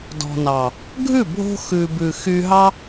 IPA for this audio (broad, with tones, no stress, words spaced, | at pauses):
dɔ̤˨nɑ˨ | ɡʱʉ˦˨bʱo̤˧ xʉ˨bʉ˨ xy˧ɦɑ˦